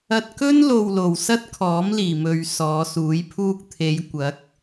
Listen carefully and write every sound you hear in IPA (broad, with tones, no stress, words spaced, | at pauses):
ɐ˧t̚kɵ˥n lo˨w lo˨wsɐ˥t̚kʰɔː˨˥m liː˨mɵ˧ɥ sɔː˨˧suː˨˥j pʰuː˧k̚t̪ʰe˨˧j kʷɐ˨˥k̚